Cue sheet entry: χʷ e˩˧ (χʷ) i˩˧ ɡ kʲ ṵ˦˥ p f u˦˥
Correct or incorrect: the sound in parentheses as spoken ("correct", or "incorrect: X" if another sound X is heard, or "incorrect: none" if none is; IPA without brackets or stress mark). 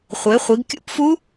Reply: correct